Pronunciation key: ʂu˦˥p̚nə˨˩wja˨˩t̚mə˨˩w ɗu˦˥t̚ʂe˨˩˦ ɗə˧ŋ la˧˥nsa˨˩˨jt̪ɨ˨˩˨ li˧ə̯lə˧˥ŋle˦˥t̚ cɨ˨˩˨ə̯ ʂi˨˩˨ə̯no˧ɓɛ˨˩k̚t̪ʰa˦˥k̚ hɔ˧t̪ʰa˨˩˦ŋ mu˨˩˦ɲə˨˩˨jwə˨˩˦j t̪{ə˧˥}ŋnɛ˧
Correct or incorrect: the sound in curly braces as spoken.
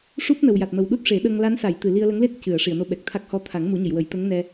correct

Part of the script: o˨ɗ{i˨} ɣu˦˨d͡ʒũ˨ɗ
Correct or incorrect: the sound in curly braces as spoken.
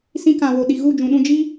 correct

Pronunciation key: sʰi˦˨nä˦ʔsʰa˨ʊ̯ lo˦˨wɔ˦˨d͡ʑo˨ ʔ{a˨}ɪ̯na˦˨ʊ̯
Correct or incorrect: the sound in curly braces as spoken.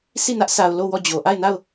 incorrect: a˦˨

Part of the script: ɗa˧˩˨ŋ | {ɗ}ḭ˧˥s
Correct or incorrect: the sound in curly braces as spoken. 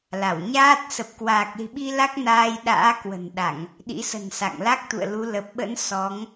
correct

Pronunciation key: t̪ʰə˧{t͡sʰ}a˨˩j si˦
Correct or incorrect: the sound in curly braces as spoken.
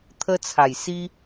correct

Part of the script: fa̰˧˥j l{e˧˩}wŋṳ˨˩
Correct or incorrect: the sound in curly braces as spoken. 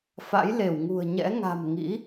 correct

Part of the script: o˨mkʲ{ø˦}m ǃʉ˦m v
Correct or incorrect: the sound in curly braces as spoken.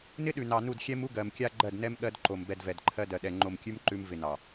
incorrect: ʉ˦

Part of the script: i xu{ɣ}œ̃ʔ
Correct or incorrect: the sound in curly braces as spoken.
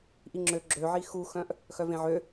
incorrect: x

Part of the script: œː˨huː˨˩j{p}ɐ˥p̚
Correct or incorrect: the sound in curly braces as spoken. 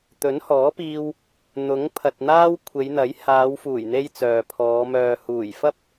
incorrect: f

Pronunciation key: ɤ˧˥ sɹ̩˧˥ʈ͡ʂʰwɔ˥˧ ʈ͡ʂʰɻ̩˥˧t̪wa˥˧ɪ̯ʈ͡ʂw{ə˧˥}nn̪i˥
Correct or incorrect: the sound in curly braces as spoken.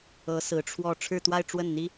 incorrect: ə˥˩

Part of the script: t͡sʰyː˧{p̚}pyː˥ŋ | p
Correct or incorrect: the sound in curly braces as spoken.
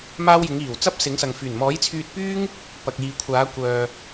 incorrect: t̚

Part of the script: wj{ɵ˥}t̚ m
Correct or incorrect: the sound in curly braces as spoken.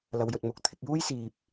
incorrect: ɵ˨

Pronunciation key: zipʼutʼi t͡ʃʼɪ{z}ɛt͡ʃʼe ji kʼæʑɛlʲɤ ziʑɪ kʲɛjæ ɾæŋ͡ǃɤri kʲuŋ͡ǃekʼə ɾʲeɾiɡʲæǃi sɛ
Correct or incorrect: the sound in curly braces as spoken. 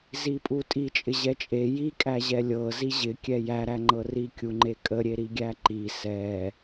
incorrect: ʑ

